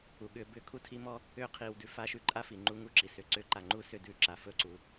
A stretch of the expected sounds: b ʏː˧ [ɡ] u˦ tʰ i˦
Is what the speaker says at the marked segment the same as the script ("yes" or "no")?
no